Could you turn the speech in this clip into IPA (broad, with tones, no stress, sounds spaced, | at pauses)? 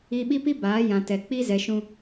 i˦ ɓ i˦ p i˦ b aː˨˦ j ã˨ t ɛ˨ k͡p i˦ z ɛ˨ ʃ ũ˨